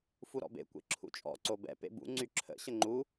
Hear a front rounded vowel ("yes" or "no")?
yes